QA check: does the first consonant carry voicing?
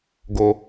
yes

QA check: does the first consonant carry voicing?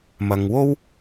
yes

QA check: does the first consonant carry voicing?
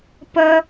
no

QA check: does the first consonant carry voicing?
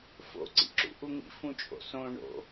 no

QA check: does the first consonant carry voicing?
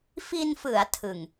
no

